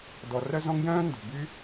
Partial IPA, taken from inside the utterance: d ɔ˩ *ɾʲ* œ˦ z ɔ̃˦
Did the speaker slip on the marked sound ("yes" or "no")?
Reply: yes